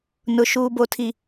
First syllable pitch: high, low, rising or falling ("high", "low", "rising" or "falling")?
low